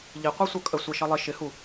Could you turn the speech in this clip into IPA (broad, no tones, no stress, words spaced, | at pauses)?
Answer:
ʎiqʷɛ sʷʌkʼə sʷɛʃʌlˠɪ ʃɪhu